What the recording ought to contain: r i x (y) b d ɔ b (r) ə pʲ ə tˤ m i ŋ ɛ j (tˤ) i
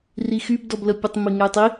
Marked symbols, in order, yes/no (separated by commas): yes, no, yes